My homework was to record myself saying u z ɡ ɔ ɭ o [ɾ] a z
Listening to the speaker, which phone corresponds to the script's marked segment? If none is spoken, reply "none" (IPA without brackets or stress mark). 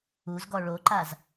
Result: ǃ